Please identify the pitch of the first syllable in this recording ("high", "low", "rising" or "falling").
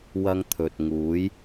high